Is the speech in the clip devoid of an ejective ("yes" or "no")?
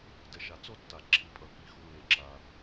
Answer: no